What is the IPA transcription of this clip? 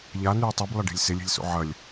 ʎ a n ʉː tˤ u b lˠ ɐ ɖ e̤ lʲ s e lʲ e̤ lʲ s o̰ ʕ ɐ lʲ

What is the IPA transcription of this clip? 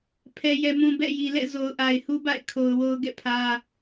pʰ ɛ˨ j ɛ˨ m ũ˨ b ɛ̰˦˨ j i˨ l ɛ̰˦˨ z o˨ ʊ̯ ʔ a˨ ɪ̯ h u˦ b a̰˦˨ ɪ̯ kʰ o˨ ʊ̯ w o˦ ʊ̯ ɡ ɛ̰˦˨ pʰ ä˦

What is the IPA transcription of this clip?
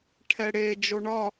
ʈʰ ɛ ɽ e d͡ʒ o ɳ ɒ

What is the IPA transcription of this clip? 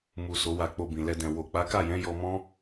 m u˨ s o˨˦ w a˧ k͡p o˧ b ĩ˨ l ɛ˧ d ɛ̃˨ w o˨ k͡p a˨˦ k a˦˨ j ɛ̃˨˦ j ɔ˧ m ɔ̃˦

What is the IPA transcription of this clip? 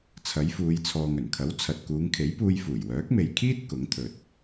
t͡sʰ ɐ˨˥ j f uː˨˧ j t͡sʰ ɔː˨ ŋ ɵ˨˩ n kʰ ɐ˨˥ w t͡sʰ ɐ˨ t̚ k uː˨˧ ŋ kʰ e˨˥ j p uː˧ j f uː˨˩ j w œː˨˥ k̚ m e˨ j kʰ iː˥ t̚ k ʊ˨˥ ŋ t̪ʰ ɵ˨ t̚

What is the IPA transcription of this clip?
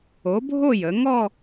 o˩˧ bʱ o˥˧ j ə˩˧ ŋ ɔ˥˧

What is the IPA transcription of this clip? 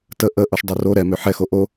t ə ʔ ə ʔ o ʃ dˤ o r o ɾ ɛ m ø ħ ɛ x o ʔ o

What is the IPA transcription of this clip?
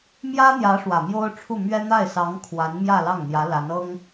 m j ä˥ n̪ j ä˧˥ ʂ w ä˨˩ m j o˥ ʊ̯ ʈ͡ʂʰ u˥˩ m ɥ ɛ˥ n̪ a˥˩ ɪ̯ s ɑ˧˥ ŋ kʰ w a˧˥ n m j ä˥˧ l ɑ˥˩ ŋ n̪ j ä˧˥ l a˧˥ n ɤ˥ ŋ

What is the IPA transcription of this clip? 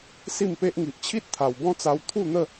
s i˥˧ m p e˦ ʔ ŋ i˨ ʔ t͡ɕʰ i˦ t̚ t̪ʰ a˨˩ w b ɔ̃˦ t͡s a˧ w t̪ʰ u˥˧ n̪ ə˥˧

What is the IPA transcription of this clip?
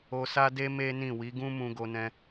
o˧ s a˦ d e˦ m e˦ n ĩ˦˨ w i˨˦ ɡ ũ˦ m ũ˧ ɡ o˧ n ɛ̃˧

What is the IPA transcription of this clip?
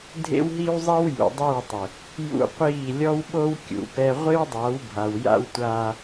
dʱ ḛ˦ w ɦ i˦ w zˤ i˦ w j ṵ˨ dˤ ɛ˦˨ w tˤ ɪ˨ | j ṵ˦ qʷ iː˦˨ lʲ ɔ˦ w ɓ o˦ w kʲ ṵ˨˦ p ɛ˦ ʁʷ ɪ˦ w dˤ a˨˦ w bʱ a˨ w j a̰˦ w tʷ aː˦

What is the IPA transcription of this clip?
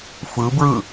f ɯ b ɹ ɯ

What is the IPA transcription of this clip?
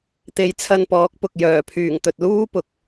t̪ e˨˧ j t͡sʰ ɐ˧ n p ɔː˨˥ k̚ p ʊ˨ k̚ j œː˨˩ pʰ yː˨˩ ŋ t̪ ɵ˨ t̚ l uː˥ p ʊ˨ k̚

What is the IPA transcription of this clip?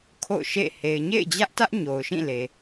kʰ o̰˦˨ ʊ̯ ʃ ḛ˦˨ h e˨ ɪ̯ ɲ ḛ˦˨ ɪ̯ d͡ʑ ä˦ ʔ t ä˦ ʔ ɲ o˨ ʊ̯ ʃ ĩ˦˨ l e˨

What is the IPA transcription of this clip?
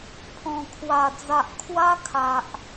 pʰ ɔ̃˨˩ kʰ w a˨˩ d͡z a˨ ʔ kʰ w a˦ kʰ a˨ ʔ

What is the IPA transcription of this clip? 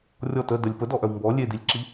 rʲ ɔ t ə d ə lʲ p ə d ɔ ʔ œ w m b ɔ lʲ e d i lʲ ǁ i

